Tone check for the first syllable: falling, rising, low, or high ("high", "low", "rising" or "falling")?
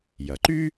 low